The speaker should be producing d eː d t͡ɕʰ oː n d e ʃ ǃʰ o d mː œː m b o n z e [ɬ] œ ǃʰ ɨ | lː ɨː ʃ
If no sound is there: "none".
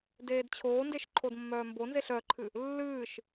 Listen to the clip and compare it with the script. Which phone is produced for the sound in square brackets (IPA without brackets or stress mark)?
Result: ɬ